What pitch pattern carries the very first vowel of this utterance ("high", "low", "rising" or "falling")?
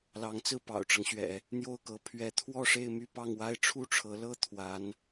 rising